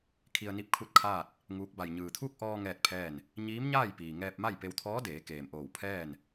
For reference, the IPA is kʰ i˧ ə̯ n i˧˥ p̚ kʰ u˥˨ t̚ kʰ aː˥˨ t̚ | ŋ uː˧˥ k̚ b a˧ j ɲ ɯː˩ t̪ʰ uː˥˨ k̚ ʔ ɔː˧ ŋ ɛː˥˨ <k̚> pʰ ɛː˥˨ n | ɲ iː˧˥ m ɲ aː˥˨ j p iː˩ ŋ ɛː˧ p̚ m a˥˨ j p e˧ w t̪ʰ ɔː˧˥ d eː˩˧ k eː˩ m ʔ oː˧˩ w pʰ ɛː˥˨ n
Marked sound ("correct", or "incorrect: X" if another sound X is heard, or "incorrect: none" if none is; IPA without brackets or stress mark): incorrect: t̚